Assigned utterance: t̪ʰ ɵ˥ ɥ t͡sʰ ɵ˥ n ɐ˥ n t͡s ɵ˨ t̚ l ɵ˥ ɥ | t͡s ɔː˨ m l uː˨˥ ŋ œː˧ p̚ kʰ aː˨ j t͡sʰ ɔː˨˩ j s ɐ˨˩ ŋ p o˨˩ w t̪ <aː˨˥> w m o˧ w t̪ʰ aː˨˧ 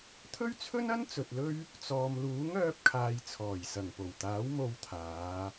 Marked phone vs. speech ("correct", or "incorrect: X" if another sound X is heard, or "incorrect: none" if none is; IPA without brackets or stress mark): correct